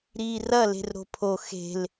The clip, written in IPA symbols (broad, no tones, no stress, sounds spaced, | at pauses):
ɾ iː r ɐ l e̤ r ɾ o̤ pʰ o x e̤ l